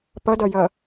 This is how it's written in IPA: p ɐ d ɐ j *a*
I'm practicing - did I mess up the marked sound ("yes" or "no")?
yes